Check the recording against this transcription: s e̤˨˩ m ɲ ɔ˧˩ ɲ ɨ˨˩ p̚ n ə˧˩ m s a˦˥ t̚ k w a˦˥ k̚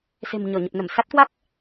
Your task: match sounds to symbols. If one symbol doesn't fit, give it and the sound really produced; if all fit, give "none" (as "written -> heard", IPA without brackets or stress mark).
ɨ˨˩ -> ə˨˩